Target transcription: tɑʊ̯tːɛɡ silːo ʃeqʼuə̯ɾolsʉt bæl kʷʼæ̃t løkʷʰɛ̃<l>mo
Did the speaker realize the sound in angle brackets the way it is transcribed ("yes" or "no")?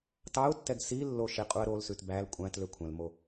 yes